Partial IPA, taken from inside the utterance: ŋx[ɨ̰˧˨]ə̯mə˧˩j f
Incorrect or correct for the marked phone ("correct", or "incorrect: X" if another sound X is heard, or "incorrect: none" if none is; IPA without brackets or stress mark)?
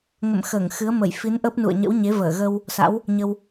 incorrect: ɨ˨˦